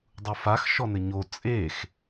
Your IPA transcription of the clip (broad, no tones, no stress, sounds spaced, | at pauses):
dˤ u f a x ʃ ɔ n ɘ ɲ o t͡sʼ e x